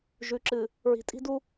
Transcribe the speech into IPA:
ʒ ʉ˨ ǁ ɨ˨ | ɹ i̤˨ tʼ i̤˦ d u˦

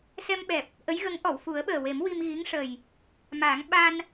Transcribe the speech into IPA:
s ɛ˧ m ɓ ɛ˨˩ p̚ | ʔ ə˧˥ j ɣ ə˧˥ ŋ ʔ ɔ˨˩˨ w f u˨˩˦ ə̯ ɓ əː˨˩ w e˨˩˦ m w i˧ m ɣ i˧˥ ŋ ʂ ə˨˩ j | m aː˨˩˦ ŋ ɓ a˧ n

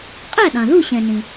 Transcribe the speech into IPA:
qʼ æ˥˩ ɗ ɑ̃˩ ð u˥˩ ɕ ɛ̃˩ n ĩ˩

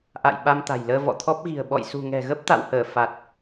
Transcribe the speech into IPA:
ʔ a̰˧˨ j ɓ a˧ m t̪ a̤˨˩ j l əː˧ v ɔ̰˧˨ t̪ʰ ɔ˦˥ p̚ ɣ i̤˨˩ ə̯ ɓ ɔ̰˧˨ j s ṳ˨˩ ŋ ɛ̤˨˩ ɣ ə˦˥ p̚ t̪ a̰˧˨ w h əː˧˩ f a˨˩ t̚

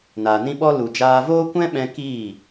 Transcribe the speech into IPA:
n aː˨ n ĩ˦ ɓ ɔ˦ l u˨ d͡ʒ aː˧ v oː˦ kʷ ɛ̃˦ ɓ ɛ̃˧ k iː˦˨

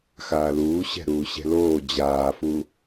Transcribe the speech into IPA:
x aː l uː ɕ ɛ̤ ɾ uː ɕ ɛ̤ l oː d͡ʑ aː f u

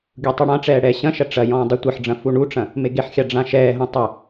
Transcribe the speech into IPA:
ɡʲ u tˤ ɨ ɽ ã ʈ͡ʂ ɛː ɽ ɛː ɕ ɐ̃ ʃ ɐ ʈ͡ʂ ɐ j ɔ̃ː dˤ i tʷ ɨ ħ ɖ͡ʐ ɐ̃ f u ɳ u ʈ͡ʂ ɐ̃ | m e ɡ e ħ xʲ a ɖ͡ʐ ã ʃ ɛː ɦ õ tˤ ɘ

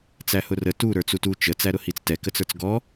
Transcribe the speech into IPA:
t͡s æ h ʊ r ə t u ɾ ə˞ t͡s u t u t͡ʃ ə t͡s æ ɾ ʊ h i t͡s t ɛ k ə t͡s ə˞ t͡s ɡ ɔ

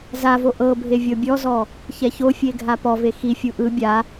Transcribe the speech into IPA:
z a v o ʔ ɤ bʱ e vʲ ɤ bʲ ɔ z ɔ | ç ɛ ç o fʲ e ɡʱ a p ɔ v e x i fʲ u ʔ ɯ bʲ a

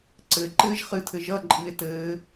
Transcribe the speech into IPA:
ǀ ɘ ǃ ɘː ʒ χ ɨ tʰ ɘ ʒ ʌ ǃʼ ɨ e̯ t ɘː

